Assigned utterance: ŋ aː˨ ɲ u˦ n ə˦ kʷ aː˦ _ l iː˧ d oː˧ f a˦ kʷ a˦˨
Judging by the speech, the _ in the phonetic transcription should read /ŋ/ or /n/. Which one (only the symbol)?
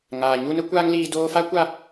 ŋ